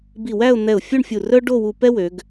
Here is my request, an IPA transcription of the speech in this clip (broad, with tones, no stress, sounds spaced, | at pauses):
b i˧˩ w æ˥˧ ʊ̯ n̪ ɛ˧˩ ʊ̯ fʲ o˥˧ ɳ fʲ u˧˩ r œ˥ ɖ o˥˧ w u˧ p ɛ˥ w ø˩˧ ɡ